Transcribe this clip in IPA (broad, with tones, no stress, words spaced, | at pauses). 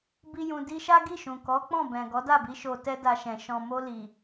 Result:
bi˧jũ˨ di˧ʃa˦ ɡi˦˨ʃũ˨ kɔ˨˦ k͡pɔ̃˦˨bɛ̃˨ ɡɔ˨˦da˦˨bi˨˦ ʃo˧tɛ˦da˧ʃɛ̃˨ ʃɔ̃˨mo˧ li˨